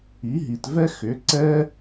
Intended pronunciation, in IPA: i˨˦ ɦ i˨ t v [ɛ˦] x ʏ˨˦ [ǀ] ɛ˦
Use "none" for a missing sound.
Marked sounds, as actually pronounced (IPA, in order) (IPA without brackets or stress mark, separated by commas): ɛ˦, ǀ